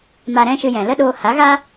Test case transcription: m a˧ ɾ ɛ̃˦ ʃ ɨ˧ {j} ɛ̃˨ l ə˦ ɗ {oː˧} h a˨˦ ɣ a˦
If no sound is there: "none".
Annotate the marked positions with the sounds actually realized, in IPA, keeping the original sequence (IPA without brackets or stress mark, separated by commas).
j, oː˧